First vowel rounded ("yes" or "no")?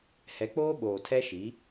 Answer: no